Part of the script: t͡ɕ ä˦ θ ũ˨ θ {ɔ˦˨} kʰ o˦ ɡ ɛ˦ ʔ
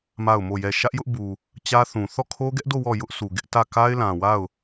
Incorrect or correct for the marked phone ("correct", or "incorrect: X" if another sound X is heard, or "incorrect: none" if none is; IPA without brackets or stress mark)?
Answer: correct